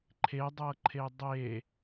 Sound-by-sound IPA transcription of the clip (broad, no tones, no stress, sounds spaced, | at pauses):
ǃʰ e dˤ ɤ ǃʰ e dˤ e